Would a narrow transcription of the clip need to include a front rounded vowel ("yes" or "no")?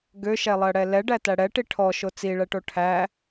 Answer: yes